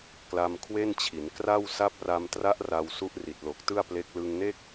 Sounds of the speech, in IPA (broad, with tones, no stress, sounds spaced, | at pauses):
k l a˧ m kʰ w e˥˩ n t͡ɕʰ i˩˦ n k r a˥˩ w s a˦˥ p̚ r a˧ m t r a˦˥ ʔ r a˧ w s u˦˥ ʔ r i˨˩ t̚ l o˨˩ k̚ t ɯ˥˩ a̯ p l e˦˥ k̚ l ɯ˧ ŋ n e˥˩ k̚